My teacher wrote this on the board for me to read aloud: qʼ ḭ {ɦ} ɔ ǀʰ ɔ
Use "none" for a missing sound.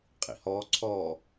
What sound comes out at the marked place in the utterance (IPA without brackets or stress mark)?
h